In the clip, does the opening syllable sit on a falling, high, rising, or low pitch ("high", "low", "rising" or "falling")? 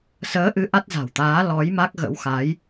rising